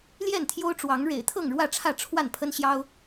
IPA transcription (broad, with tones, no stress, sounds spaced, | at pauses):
l j ɛ˥˨ n t̪ʰ j o˦ ʊ̯ ʈ͡ʂ w ɑ˨˦ ŋ ɻ ḛ˨˩ ɪ̯ t̪ʰ ɤ˥˨ ŋ ɻ w ä˥˨ ʈ͡ʂʰ ä˥˨ ʈ͡ʂʰ w a˥˨ n pʰ ə˦ n ɕ j ɑ˦ ʊ̯